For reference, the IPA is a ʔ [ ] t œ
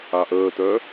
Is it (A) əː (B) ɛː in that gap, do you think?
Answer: A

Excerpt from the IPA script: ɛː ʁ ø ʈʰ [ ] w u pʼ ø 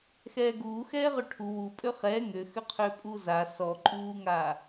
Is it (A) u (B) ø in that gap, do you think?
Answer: A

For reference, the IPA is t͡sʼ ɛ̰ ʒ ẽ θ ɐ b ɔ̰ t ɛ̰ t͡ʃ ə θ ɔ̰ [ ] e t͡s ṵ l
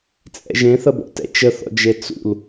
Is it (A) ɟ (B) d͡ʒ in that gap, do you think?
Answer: B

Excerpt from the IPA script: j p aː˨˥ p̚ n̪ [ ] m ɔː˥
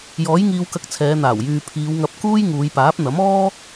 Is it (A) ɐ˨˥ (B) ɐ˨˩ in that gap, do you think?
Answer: A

